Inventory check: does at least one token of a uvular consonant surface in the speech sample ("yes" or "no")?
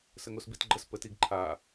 no